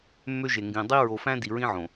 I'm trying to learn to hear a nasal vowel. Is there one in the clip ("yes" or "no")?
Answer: yes